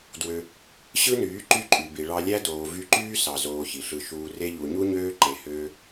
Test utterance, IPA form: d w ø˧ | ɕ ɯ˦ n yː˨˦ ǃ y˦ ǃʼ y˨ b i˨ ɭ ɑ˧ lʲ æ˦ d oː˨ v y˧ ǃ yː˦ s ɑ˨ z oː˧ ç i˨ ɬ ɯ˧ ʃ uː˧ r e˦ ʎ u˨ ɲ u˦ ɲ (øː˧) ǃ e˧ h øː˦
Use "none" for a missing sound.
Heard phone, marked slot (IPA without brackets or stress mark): øː˦